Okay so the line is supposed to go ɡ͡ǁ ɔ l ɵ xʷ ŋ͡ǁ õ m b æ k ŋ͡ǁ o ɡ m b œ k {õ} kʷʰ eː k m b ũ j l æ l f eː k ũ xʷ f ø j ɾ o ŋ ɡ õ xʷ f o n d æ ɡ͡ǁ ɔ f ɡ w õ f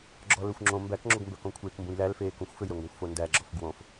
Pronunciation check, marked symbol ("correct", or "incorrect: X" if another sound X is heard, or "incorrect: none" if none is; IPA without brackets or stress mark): correct